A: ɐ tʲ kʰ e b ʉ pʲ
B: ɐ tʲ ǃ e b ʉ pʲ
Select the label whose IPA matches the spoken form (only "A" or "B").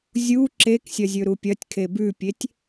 A